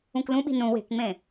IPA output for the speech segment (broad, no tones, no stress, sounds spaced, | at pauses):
ũ k l ũ ɓ i̤ n ũ w e̤ k ŋ͡m ẽ